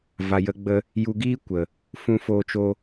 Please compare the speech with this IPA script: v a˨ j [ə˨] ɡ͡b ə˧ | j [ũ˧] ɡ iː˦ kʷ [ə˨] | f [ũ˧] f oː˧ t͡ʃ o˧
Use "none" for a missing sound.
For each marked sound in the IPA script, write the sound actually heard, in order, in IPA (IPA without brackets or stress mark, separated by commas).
ə˧, u˧, ə˨, ũ˧